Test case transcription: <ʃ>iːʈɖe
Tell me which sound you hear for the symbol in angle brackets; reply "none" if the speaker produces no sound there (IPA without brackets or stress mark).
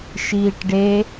ʃ